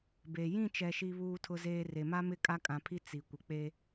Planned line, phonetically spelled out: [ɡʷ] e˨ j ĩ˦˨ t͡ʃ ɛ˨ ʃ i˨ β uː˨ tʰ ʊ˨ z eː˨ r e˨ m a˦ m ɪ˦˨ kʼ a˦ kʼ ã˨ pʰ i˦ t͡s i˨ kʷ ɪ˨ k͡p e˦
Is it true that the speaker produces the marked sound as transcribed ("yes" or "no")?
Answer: no